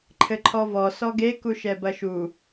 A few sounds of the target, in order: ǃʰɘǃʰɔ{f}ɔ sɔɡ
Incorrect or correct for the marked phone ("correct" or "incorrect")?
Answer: incorrect